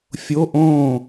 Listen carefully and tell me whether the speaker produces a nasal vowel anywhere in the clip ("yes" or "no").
yes